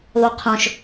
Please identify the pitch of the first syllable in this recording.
high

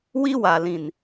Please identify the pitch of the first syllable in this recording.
high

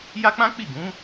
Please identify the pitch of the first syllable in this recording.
high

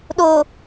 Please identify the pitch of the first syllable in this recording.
low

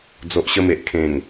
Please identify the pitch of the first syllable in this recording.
low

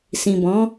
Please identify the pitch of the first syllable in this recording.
low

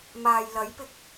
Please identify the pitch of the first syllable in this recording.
low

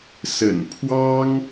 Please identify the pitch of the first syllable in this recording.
low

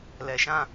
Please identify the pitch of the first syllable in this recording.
low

